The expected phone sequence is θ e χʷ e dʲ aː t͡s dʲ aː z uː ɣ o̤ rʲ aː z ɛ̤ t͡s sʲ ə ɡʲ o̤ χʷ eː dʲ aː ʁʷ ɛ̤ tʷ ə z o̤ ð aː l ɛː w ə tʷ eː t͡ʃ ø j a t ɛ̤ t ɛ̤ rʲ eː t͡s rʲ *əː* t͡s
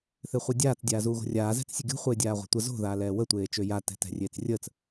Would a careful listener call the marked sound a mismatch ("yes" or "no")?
no